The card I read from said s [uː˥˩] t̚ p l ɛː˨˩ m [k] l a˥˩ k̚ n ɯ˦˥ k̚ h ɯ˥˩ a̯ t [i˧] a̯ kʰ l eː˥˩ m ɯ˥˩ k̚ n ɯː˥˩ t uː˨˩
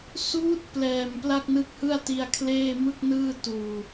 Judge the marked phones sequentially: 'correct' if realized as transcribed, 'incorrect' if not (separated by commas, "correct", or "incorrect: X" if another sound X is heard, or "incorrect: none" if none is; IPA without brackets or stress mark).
incorrect: uː˦˥, incorrect: p, correct